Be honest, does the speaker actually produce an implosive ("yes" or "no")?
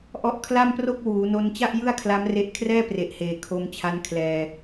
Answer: no